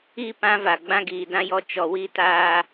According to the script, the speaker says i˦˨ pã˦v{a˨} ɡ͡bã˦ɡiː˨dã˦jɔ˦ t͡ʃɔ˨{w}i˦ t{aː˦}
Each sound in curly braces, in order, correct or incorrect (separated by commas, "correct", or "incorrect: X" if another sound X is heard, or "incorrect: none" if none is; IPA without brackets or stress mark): correct, correct, correct